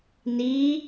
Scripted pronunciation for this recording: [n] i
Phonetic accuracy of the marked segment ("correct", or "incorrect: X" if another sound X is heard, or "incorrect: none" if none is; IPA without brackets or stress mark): correct